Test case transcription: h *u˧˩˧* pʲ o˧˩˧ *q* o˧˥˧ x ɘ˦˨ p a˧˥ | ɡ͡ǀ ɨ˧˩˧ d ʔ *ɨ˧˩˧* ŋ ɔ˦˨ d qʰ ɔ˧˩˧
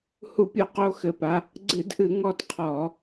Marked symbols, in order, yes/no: yes, yes, yes

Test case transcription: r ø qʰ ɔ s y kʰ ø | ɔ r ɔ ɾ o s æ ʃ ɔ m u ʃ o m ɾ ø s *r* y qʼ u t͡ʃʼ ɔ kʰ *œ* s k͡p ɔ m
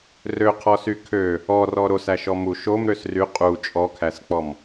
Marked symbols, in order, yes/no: yes, no

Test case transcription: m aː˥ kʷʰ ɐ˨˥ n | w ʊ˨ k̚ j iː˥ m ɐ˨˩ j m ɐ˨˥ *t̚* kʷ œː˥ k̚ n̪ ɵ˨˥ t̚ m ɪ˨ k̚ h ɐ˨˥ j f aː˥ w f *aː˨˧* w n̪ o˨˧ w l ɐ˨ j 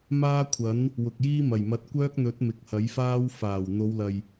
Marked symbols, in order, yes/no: yes, no

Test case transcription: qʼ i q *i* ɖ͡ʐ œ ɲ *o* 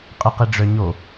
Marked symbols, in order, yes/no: yes, yes

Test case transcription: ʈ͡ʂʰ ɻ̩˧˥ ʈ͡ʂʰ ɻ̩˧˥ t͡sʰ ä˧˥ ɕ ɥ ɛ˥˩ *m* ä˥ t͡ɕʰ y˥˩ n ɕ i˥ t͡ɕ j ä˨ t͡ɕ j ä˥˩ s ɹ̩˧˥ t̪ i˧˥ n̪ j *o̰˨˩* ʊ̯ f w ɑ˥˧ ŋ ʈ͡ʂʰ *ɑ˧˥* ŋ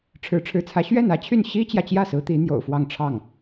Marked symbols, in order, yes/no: no, yes, no

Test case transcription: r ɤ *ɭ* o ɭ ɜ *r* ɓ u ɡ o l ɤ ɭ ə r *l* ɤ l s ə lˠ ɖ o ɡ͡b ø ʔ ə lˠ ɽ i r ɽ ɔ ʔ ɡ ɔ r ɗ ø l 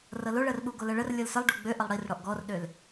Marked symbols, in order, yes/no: no, yes, no

